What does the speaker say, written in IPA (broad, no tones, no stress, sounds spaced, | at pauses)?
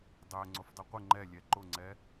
dˤ ɛ ŋ͡ǀ ʊ f dˤ i qʷ ɪ ŋ͡ǃ ɛ lʲ ɛ ǃ ʊ ŋ͡ǀ ɛ